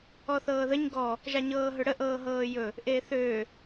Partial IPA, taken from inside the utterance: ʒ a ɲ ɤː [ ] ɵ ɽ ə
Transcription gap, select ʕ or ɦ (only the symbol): ɦ